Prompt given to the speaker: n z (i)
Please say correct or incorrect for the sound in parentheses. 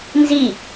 correct